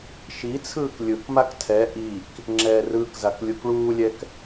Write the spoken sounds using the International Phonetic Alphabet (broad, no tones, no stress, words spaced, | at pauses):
ʃit͡sʰɯːk lʲɯkmak tʰɛ ʔik | ŋ͡ǁɛːrɯːkzak lʲukɭuːlʲɛk